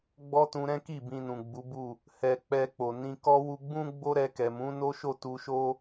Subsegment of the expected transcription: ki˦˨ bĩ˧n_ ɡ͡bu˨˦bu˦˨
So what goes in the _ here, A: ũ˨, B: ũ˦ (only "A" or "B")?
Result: A